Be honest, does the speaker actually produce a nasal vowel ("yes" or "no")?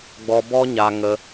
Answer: no